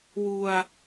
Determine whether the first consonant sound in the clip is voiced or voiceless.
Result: voiced